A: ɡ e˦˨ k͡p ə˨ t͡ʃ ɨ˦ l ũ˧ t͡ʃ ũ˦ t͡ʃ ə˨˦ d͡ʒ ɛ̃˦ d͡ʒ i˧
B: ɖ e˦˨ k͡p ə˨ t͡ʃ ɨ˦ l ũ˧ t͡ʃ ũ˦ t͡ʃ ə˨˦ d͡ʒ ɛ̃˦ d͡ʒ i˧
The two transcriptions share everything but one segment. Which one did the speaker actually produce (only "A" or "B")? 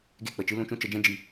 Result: A